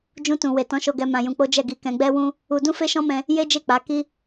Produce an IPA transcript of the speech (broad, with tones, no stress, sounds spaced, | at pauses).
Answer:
d͡ʒ ũ˧ t ũ˨ w e˨ t ɔ̃˨˦ ʃ o˧ ɡ ɛ˧ m ã˧ j ũ˧ k͡p o˦ d͡ʒ ɛ˦˨ ɡ i˧ k ɛ̃˧ ɡ͡b ɛ˦ w ũ˦ | u˧ d ũ˦ f e˦ ʃ ɔ̃˦ m ɛ̃˧ | j e˦ d͡ʒ e˦˨ k͡p a˨˦ k i˦